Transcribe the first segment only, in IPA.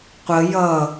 qʷ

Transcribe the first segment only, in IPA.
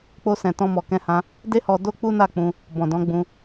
k͡p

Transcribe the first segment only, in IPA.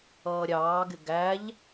ʌː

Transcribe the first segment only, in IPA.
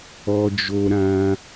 ɔ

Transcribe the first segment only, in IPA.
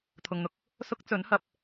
t̪ʰ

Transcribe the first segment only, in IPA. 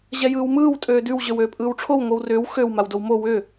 ʑ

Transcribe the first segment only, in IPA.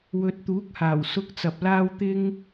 w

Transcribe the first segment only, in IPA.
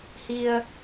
h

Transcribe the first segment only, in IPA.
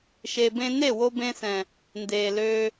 ʃ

